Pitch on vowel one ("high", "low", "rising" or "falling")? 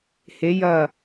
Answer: rising